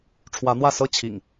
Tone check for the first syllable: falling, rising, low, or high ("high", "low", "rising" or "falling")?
rising